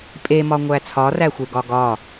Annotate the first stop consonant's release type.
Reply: ejective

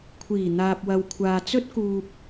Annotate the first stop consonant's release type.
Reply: aspirated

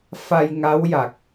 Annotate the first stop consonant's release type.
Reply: plain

